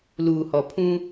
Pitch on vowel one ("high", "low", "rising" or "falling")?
low